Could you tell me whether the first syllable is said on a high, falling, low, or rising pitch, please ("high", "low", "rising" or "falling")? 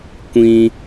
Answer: high